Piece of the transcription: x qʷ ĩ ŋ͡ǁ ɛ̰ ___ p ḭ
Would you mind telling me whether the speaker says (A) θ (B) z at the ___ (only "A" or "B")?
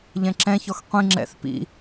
A